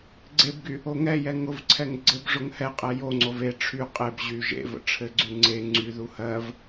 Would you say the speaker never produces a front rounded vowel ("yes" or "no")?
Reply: no